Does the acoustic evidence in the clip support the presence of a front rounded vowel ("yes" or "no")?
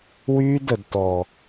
yes